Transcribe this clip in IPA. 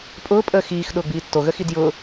pʼ ʊː pʼ əː x iː x ɗ ʊː ɡ͡b iː tː o ɣ ə x i d j ʊː

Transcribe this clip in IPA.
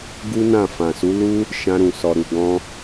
ɡ u˦ n ã˦˨ f ã˨ s u˨˦ l u˦ | ʃ ã˧ ɾ ũ˨ s ɔ˨ ɾ u˨ ɡ ɔ̃˧

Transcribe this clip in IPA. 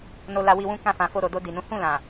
n o˧ l a˧ w i˧ w ũ˦ k ã˧ f ã˨ f o˧ ɾ o˨ d o˧ d i˨ n ũ˨˦ h ũ˦˨ l ã˨

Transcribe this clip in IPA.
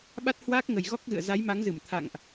ɓ a˦˥ t̚ h w aː˦˥ k̚ ŋ ə˨˩ j ɣ ɔ˦˥ k̚ ɣ ɨ̰˧˨ ə̯ z a˨˦ j m a˨˦ ŋ z ɨ˧˩ m t̪ʰ a̰˧˨ ŋ ʔ

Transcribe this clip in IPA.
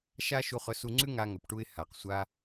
ʃ a˥ ʃ u˧ χ ɵ˧ s u˧ ŋ͡ǀ ʉ˥ ŋ a˧ ŋ ɵ˩ p ʈ u˧ ɪ̯ h a˩ q sʷ a˧

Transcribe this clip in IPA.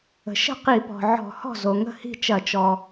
ə̤˩ ʃ ə̤˥˩ q i˧˩˧ p ɔ̤˩ ʕ ɔ̤˧˩˧ h ɔ̤˥˩ z o˩ ŋ ə̤˥˩ h i̤˥˩ t͡ʃ ɐ˧˩˧ t͡ʃ ɔ˩

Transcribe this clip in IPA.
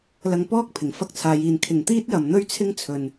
l ɐ˧ ŋ p ɔː˥ k̚ pʰ ɪ˨˩ ŋ f ɐ˥ k̚ t͡sʰ aː˨˧ j iː˨ n kʰ ɪ˨ ŋ t̪ iː˥ t̚ j ɐ˨ m n̪ ɵ˥ ɥ t͡sʰ ɪ˥ ŋ t͡sʰ ɵ˨ n

